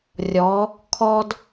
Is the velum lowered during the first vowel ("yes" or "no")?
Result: no